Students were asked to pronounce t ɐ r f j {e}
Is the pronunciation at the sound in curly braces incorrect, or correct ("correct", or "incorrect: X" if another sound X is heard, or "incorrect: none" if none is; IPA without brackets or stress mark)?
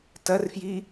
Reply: incorrect: i